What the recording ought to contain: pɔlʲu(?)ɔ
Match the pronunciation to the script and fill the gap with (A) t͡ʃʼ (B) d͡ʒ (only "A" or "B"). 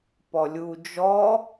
B